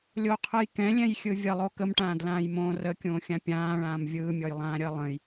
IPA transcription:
lʲ o qʰ ɯ j k ɛ̃ lʲ ɛ̃ j xʲ ɯ vʲ ə lˠ o k ə m ʈ ãː d l ãː j m õː r ə kʲ õː xʲ ã pʲ ãː ɭ ãː m vʲ ɯː mʲ ɔ j lˠ ãː ɾʲ əː lˠ ə̃ j

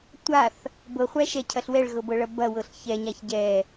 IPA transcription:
tʷ a θ | b ɤ χʷ æ ʃ ɛ cʰ ɐ ɬ w ɛ ɭ ɣ ɤ b ɤ ɭ ɐ b ɐ w ɤ ɬ ç ɛ ɲ a ç ɟ ɛ

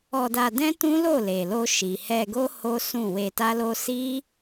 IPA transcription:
ɔ˧ d a˧ d ɛ̃˦ t ũ˦ l o˦˨ l e˨ l o˧ ʃ i˨ h ɛ˧ ɡ o˦ h o˦ s ũ˦˨ w e˧ t a˦ l o˦ s i˦

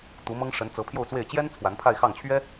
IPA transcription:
t̪ u˧˥ m ɤ˥ ŋ ʂ ə˧˥ n t͡s ɤ˧˥ pʰ j o˥˧ ʊ̯ t͡s w e˥˩ ɪ̯ t͡ɕ j ɛ˥ n t͡sʰ w a˧˥ n pʰ a˥˧ ɪ̯ x ɑ˥˩ ŋ t͡ɕʰ ɥ ɛ˥

